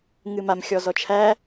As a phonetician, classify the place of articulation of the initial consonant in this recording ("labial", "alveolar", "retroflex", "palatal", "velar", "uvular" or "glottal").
velar